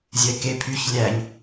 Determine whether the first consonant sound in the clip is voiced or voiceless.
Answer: voiced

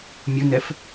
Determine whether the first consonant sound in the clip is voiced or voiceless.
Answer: voiced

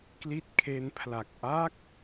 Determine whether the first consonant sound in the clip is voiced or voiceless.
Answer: voiceless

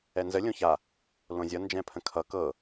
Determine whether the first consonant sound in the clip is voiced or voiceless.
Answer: voiced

